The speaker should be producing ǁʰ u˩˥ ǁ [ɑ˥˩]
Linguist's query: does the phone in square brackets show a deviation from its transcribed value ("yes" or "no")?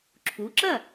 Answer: yes